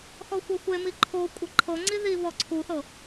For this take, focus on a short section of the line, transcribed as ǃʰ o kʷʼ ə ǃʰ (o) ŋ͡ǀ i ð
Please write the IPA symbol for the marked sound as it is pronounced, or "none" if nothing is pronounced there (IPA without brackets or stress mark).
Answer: ɤ